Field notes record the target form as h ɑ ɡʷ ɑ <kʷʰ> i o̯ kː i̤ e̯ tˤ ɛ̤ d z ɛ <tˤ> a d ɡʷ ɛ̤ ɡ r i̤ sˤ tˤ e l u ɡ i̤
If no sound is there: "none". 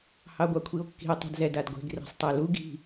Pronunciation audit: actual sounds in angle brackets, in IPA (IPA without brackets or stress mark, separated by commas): kʷʰ, d